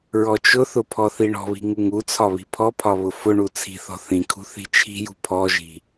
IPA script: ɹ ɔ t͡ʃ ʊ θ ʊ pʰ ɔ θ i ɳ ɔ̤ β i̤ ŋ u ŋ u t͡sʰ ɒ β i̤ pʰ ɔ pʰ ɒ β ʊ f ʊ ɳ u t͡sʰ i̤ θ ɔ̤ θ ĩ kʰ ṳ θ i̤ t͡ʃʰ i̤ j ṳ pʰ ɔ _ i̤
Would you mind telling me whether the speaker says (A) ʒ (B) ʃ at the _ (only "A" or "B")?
A